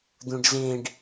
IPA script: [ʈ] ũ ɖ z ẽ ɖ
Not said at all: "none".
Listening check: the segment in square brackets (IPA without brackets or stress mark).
d̪